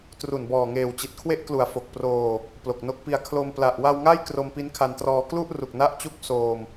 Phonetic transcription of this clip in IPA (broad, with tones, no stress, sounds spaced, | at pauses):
t r u˨˩ n b ɔː˨˩ ŋ eː˨˩ w t͡ɕ i˨˩ t̚ kʰ w e˦˥ ʔ k l u˩˦ a̯ f o˨˩ k̚ p r oː˧ | p l o˨˩ k̚ n o˦˥ k̚ p i˧ a̯ kʰ l o˧ m p l a˨˩ ʔ w a˧ w ŋ a˥˩ j k r o˧ m p i˦˥ n kʰ a˧ n t r ɔː˧ k l u˥˩ ʔ r u˨˩ k̚ n a˦˥ ʔ t͡ɕ u˦˥ k̚ s oː˧ m